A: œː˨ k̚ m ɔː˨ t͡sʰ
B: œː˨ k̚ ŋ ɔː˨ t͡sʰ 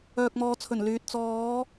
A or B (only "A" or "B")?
A